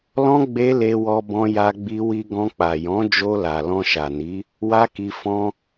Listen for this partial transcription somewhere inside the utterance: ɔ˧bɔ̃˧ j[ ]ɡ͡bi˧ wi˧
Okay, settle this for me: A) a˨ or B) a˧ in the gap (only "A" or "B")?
B